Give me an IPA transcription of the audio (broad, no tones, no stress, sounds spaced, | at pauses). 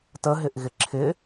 t ə ɦ ɪ ʔ ɣ ɪ ǁʰ ɪ